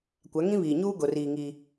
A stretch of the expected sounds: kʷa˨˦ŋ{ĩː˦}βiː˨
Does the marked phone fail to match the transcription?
yes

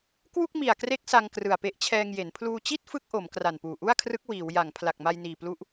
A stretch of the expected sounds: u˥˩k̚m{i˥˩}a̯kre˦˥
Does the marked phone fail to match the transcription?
yes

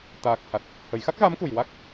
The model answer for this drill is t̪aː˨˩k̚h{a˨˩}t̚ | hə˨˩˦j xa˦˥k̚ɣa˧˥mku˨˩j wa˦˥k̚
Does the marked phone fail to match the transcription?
no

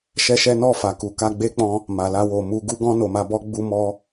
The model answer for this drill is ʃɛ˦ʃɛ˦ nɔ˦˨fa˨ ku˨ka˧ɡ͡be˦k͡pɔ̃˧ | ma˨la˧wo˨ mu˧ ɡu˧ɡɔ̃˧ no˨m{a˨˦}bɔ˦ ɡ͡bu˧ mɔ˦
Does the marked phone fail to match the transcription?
yes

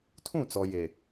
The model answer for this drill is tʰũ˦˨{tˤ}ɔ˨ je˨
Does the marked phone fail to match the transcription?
yes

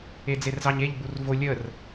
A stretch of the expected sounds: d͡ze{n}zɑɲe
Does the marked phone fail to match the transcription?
yes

